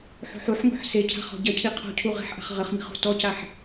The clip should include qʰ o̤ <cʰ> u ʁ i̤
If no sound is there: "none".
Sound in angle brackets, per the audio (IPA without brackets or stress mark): cʰ